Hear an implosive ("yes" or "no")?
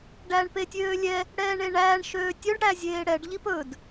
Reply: no